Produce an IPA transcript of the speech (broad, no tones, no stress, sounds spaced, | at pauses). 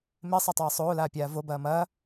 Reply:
m e sˤ a tˤ eː sˤ oː l aː pʲ aː v o b ɐː m ɐː